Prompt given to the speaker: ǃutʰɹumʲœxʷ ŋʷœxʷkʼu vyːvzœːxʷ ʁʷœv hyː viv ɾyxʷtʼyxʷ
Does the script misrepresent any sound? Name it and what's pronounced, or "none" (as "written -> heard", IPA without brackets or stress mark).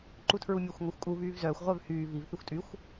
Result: ɾ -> θ